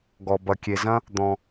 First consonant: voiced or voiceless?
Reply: voiced